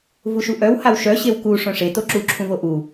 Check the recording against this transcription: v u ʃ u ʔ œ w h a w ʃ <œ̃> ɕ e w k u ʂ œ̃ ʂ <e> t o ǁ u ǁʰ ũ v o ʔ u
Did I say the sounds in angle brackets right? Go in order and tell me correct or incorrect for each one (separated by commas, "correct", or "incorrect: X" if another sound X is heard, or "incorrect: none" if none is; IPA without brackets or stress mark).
incorrect: œ, correct